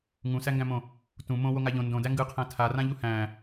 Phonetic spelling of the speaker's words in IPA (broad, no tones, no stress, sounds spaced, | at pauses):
ŋ ũ s æ ŋ ɡ æ̃ m õ | t ũ m õ w o ŋ a ʎ õ n d õ d æ ŋ ɡ ɯ qʰ æ̃ tʰ a r ã ʎ u h æ̃